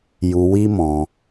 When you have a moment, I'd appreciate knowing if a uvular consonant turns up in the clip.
no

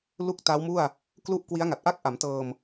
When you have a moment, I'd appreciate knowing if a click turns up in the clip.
no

